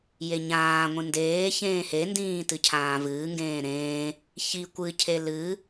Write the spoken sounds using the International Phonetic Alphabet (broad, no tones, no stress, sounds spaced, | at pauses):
j e ɲ ãː ŋʷ ĩ n d eː ç ẽː h e n d ĩː t ɨ cʰ ãː v ɨː ŋ ɡ ẽː ɾ ẽː | ç i kʷ ɨ cʰ e l ɨ